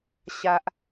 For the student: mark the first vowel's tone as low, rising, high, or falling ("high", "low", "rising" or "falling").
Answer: high